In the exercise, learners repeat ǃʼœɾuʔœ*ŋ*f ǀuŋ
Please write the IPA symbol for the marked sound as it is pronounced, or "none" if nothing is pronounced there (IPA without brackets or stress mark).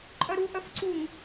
none